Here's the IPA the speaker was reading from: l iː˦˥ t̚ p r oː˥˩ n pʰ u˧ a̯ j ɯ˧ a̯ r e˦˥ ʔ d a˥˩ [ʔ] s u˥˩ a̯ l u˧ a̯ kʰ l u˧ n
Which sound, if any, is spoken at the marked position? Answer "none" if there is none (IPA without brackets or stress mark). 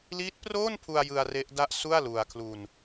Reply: ʔ